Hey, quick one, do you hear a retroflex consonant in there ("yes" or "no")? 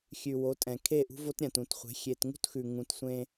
no